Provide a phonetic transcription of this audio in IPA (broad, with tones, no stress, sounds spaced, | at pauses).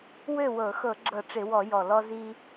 w ø˥˩ w ɤ˧˩˧ x ɤ˧˩˧ ɡ͡ǁ ɤ˧˩˧ ʈ͡ʂ ɪ˧˩˧ w ɔ˧˩˧ j ɔ˨˩ l ɔ˧ z i˧